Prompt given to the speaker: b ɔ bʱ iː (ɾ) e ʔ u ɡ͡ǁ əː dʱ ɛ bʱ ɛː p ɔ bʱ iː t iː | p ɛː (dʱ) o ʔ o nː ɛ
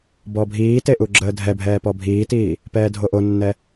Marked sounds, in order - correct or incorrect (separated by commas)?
incorrect, correct